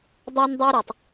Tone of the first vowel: high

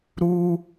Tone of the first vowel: high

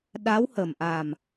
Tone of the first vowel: rising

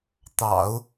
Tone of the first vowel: low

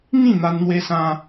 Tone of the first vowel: falling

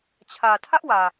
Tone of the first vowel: low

